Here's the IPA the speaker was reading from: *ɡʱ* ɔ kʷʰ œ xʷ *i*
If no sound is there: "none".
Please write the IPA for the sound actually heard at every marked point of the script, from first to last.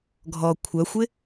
ɡʱ, ɪ

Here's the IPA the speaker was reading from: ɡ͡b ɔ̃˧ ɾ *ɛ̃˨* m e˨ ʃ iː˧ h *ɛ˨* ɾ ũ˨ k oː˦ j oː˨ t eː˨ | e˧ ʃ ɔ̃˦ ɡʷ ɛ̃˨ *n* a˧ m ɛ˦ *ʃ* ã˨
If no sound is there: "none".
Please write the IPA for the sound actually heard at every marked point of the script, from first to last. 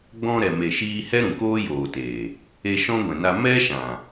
ɛ˨, ɛ˦, n, ʃ

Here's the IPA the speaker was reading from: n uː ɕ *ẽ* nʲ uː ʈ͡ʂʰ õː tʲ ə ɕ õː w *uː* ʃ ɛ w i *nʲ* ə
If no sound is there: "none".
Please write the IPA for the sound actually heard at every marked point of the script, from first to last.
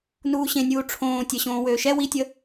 ẽ, øː, tʲ

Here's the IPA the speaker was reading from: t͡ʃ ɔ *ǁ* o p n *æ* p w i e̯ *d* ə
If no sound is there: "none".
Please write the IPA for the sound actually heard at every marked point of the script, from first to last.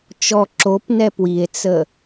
ǁ, ɛ, t͡s

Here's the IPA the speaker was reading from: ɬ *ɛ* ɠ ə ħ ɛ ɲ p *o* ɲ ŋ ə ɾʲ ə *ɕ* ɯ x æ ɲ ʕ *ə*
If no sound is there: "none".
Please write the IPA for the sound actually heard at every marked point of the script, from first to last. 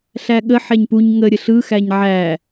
æ, u, ɬ, æ

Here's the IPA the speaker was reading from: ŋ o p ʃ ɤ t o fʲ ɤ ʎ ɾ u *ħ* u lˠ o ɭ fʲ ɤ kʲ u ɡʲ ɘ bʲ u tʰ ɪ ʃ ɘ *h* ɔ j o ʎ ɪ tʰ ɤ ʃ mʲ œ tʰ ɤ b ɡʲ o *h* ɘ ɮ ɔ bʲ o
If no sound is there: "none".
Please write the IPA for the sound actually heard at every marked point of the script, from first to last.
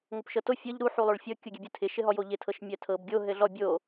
ħ, ɦ, ɦ

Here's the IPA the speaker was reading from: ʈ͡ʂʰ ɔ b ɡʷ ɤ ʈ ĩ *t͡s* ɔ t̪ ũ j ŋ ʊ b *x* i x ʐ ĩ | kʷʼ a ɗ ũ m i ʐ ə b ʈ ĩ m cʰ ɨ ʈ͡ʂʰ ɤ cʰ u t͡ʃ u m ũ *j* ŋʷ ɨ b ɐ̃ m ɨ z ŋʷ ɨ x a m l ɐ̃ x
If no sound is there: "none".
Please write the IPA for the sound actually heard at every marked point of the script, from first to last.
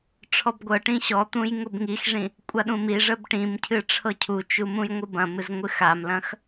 ɕ, ŋ, j

